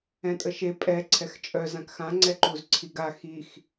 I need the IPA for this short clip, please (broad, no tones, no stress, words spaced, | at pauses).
ɛ̃tʼəʃe pʼɛ ǀʰɛxt͡ʃʼœ zãkxã ŋ͡ǀɛǃuz ǀʰiɡa xix